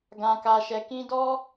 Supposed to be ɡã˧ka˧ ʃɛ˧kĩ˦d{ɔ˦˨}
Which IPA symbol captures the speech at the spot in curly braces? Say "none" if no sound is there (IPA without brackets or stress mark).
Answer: ɔ˦